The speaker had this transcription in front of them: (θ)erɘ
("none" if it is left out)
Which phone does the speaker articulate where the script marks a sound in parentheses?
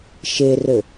ʃ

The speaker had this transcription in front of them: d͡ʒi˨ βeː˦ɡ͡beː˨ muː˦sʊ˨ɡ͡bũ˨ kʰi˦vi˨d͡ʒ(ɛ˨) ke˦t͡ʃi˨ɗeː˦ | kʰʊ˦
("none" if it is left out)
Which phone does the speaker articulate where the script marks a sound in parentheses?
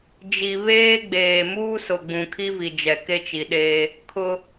ɛ˨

